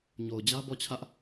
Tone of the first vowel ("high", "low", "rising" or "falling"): low